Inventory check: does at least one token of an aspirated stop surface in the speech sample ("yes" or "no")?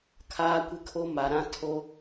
yes